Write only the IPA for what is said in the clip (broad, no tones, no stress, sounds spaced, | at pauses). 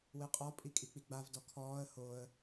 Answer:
w e qʼ ɔ pʼ i kʼ i k͡p i ɡ͡b a v d ɔ kʰ ɔː ə̯ h o ə̯